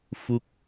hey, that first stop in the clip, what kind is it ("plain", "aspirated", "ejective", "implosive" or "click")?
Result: plain